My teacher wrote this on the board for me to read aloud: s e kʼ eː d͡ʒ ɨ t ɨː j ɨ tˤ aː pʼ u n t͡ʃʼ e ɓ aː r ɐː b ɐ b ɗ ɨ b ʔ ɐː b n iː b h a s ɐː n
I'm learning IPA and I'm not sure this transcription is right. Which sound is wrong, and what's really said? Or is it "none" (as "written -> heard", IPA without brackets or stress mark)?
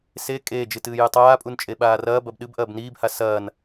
none